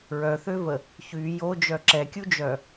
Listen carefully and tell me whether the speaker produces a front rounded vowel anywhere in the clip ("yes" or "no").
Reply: yes